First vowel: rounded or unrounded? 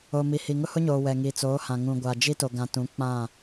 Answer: rounded